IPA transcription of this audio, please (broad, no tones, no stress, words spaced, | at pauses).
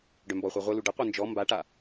ɖœmbɔχʷa ʁʷelu ɖəqʷœ nd͡ʒɔ mbaʈa